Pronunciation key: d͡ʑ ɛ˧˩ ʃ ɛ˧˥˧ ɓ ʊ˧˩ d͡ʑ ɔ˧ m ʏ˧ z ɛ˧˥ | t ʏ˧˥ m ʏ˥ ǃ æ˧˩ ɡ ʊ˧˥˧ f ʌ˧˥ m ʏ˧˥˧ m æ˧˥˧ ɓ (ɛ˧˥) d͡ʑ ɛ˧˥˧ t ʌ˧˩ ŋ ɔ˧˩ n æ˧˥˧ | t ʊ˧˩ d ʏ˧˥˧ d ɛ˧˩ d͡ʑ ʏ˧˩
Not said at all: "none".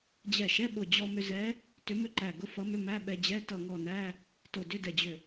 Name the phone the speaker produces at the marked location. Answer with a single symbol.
ɛ˧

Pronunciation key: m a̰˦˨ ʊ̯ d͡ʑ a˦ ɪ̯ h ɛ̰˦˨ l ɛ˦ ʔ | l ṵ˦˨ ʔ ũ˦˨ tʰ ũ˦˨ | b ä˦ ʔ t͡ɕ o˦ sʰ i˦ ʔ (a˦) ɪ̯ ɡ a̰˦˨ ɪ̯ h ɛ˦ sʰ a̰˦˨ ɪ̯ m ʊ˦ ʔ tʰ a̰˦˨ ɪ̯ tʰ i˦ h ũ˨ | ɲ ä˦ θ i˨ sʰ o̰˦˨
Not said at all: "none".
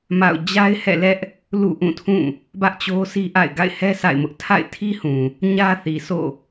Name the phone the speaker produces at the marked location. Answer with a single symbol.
a̰˦˨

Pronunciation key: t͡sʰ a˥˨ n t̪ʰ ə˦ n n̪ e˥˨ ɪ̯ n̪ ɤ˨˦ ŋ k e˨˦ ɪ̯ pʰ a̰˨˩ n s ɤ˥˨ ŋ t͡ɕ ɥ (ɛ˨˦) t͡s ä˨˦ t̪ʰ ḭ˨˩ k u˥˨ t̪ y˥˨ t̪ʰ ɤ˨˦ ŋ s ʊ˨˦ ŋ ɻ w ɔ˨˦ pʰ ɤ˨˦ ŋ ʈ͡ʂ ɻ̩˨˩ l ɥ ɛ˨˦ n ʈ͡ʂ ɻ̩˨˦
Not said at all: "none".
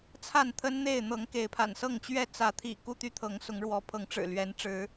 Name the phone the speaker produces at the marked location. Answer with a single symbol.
ɛ˥˨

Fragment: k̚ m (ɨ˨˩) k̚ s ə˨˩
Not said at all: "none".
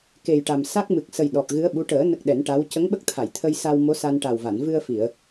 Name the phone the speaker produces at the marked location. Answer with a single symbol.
ɨ˨˩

